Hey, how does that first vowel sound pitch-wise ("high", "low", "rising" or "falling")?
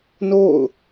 falling